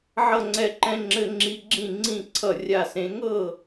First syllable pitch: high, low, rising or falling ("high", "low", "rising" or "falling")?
falling